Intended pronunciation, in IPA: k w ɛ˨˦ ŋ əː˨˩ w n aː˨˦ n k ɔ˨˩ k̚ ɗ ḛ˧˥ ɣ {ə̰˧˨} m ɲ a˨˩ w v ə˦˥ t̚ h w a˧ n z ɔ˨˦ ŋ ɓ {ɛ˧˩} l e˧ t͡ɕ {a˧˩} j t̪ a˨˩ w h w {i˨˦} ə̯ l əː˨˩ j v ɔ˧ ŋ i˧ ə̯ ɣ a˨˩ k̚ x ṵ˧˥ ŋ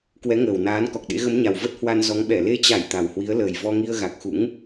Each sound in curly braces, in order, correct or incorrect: incorrect: ə˨˦, correct, correct, correct

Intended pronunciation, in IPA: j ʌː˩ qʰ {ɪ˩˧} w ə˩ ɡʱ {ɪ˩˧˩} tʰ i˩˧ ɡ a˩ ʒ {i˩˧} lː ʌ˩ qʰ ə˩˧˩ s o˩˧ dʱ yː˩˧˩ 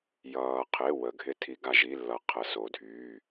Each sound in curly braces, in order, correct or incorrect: incorrect: ɪ˩˧˩, incorrect: ɪ˧˩, incorrect: i˩˧˩

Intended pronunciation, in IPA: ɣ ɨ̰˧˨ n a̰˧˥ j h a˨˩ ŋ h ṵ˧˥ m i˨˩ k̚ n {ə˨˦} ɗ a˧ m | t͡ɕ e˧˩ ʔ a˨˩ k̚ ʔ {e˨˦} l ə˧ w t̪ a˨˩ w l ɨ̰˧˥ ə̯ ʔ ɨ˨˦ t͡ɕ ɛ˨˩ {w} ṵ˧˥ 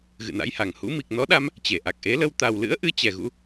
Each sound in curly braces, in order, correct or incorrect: incorrect: ɔ˨˦, correct, incorrect: ɣ

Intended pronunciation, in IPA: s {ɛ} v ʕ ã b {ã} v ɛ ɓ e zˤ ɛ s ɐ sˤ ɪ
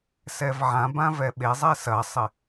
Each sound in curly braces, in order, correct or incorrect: correct, correct

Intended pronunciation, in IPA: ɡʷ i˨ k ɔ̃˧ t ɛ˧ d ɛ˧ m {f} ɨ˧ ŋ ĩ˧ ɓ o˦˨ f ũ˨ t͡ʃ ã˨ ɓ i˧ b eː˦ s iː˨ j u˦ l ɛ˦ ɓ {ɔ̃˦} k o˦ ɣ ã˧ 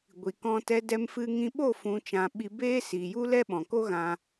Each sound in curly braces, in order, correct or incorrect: correct, incorrect: ɔ̃˨

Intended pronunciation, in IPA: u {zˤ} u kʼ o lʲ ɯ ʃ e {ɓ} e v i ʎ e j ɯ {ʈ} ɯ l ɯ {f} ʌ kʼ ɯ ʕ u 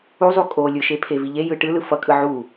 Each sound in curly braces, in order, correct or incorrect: correct, incorrect: pʰ, correct, correct

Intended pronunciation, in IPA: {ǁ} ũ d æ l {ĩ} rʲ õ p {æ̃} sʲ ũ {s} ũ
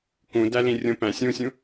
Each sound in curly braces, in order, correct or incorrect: incorrect: k, correct, correct, incorrect: sʲ

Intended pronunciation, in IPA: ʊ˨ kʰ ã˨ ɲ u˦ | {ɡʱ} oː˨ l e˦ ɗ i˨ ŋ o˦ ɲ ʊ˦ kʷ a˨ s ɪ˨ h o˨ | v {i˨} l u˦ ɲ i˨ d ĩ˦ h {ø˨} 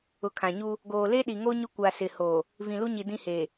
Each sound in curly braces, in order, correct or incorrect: incorrect: ɡ, incorrect: ĩ˨, incorrect: e˨

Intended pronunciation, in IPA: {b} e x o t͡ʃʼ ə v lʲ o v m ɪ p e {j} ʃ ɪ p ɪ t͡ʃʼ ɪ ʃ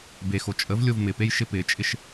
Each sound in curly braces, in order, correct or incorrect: correct, correct

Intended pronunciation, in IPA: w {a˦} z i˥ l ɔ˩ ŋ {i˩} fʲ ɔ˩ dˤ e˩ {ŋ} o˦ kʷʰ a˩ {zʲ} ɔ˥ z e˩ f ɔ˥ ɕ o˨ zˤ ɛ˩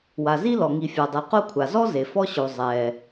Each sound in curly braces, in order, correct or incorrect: incorrect: a˩, incorrect: i˨, incorrect: q, incorrect: z

